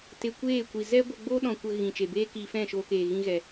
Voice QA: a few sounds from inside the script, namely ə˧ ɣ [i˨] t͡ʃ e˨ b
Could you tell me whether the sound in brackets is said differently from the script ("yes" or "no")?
yes